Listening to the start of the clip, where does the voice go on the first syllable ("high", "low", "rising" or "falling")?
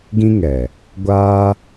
high